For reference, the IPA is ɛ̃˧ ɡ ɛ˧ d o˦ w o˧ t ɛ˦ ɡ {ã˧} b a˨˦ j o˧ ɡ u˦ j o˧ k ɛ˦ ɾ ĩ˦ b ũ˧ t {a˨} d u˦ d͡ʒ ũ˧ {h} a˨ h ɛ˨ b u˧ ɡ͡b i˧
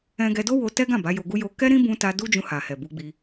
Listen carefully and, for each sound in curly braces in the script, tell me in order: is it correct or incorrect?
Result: incorrect: ã˦˨, incorrect: a˧, correct

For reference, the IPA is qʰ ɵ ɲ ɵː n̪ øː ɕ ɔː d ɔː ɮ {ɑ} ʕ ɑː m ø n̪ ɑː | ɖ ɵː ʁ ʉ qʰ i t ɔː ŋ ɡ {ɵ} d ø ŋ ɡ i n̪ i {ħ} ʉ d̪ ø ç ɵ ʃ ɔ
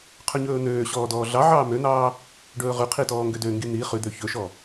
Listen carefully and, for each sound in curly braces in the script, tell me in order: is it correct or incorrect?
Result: correct, incorrect: ø, incorrect: χ

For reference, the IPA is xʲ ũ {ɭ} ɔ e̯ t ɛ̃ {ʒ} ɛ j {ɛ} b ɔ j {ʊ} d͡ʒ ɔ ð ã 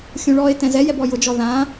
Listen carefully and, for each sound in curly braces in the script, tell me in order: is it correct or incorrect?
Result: correct, incorrect: z, correct, correct

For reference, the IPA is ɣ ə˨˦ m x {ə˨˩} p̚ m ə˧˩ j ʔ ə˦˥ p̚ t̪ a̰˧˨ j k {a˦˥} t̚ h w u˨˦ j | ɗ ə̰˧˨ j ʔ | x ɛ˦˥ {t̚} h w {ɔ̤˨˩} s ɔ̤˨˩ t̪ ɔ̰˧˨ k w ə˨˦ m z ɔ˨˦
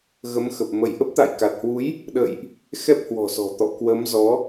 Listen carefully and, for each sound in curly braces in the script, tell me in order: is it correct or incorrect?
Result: correct, incorrect: a˨˩, incorrect: p̚, correct

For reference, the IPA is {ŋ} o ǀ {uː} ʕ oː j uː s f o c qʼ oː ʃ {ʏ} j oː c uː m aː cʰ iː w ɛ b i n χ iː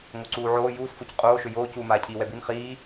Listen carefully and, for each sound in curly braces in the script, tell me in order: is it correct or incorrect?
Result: correct, correct, correct

